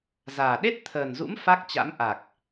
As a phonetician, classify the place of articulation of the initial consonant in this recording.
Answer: alveolar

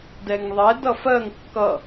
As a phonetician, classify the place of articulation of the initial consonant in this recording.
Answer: alveolar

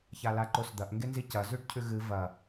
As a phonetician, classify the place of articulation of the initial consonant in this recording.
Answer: palatal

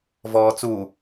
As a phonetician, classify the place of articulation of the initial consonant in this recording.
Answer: labial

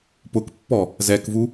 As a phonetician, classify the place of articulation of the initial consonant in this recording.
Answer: labial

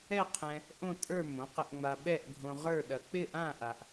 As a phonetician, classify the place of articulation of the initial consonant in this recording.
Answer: uvular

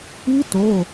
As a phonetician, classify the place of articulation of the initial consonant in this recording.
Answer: alveolar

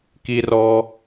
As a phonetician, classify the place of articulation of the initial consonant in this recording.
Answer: velar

